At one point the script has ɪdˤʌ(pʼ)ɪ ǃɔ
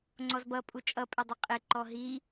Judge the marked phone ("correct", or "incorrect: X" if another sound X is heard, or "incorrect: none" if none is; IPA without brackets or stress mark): incorrect: qʼ